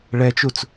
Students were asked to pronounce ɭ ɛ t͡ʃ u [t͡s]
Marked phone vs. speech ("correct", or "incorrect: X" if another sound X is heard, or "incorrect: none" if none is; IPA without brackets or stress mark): correct